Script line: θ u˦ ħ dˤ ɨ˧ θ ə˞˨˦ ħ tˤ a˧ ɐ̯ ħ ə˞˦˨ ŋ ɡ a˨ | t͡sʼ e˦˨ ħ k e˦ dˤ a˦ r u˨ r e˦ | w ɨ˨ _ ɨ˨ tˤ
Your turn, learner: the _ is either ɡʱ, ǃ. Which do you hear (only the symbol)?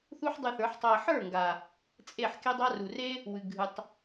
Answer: ɡʱ